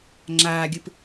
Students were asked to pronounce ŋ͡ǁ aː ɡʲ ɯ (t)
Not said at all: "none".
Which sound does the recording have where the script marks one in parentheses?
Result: p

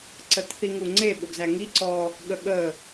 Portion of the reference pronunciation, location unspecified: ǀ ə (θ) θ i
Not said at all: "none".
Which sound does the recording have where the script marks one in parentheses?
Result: t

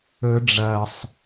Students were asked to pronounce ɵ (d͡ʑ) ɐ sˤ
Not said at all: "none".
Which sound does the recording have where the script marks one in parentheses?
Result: ɖ͡ʐ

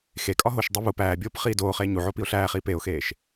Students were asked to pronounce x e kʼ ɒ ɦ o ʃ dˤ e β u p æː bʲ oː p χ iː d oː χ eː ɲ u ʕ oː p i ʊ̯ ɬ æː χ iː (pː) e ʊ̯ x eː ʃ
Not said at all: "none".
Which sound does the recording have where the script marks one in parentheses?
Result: p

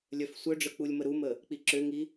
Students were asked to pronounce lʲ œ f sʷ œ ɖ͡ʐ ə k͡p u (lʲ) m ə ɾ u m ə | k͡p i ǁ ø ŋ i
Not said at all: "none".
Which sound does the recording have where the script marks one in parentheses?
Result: lʲ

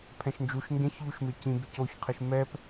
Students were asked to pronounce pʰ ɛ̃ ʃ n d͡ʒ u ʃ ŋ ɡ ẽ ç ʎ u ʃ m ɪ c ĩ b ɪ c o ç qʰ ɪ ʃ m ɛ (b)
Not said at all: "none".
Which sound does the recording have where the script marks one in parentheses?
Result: p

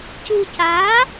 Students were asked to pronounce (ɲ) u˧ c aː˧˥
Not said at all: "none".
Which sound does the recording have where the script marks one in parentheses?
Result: c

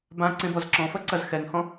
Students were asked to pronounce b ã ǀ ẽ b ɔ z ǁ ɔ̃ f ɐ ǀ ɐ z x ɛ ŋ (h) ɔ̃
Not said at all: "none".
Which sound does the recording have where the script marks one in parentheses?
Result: h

